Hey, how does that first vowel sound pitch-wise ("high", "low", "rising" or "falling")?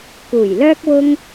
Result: low